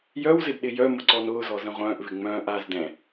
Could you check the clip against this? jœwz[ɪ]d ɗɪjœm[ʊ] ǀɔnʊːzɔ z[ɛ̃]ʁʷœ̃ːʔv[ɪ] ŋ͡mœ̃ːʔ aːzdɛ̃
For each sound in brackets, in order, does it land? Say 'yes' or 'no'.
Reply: yes, yes, no, yes

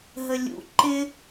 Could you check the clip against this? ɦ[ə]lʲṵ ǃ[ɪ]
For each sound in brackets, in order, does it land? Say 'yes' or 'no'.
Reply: yes, yes

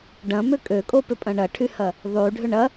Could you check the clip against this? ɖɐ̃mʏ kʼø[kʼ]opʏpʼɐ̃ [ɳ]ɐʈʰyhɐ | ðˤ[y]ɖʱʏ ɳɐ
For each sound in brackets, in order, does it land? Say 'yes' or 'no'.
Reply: yes, yes, yes

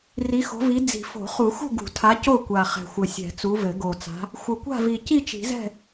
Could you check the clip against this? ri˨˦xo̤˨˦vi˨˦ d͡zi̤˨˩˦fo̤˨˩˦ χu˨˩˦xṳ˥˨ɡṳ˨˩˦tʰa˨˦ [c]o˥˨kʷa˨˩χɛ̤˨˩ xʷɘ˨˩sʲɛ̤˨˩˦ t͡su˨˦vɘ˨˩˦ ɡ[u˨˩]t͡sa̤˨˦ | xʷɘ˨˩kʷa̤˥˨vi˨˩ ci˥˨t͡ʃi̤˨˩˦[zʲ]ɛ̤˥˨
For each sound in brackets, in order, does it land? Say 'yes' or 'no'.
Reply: yes, no, no

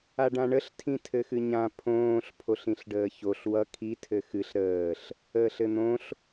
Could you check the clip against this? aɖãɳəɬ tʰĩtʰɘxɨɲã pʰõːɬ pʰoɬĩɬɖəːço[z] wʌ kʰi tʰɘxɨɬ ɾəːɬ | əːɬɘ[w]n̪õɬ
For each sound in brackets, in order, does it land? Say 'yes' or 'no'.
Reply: no, no

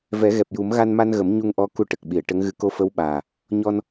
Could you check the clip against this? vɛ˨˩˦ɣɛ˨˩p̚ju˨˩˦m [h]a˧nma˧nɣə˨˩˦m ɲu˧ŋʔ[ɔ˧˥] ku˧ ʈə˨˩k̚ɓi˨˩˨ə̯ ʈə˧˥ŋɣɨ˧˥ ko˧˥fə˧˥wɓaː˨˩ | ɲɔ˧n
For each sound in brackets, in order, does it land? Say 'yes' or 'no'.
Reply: no, yes

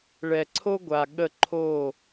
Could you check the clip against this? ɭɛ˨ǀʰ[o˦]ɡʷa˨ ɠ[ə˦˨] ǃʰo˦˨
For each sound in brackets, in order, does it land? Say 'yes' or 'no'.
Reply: yes, yes

